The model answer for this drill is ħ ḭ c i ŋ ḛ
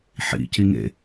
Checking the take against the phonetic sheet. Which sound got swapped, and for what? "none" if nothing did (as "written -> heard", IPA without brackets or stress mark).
none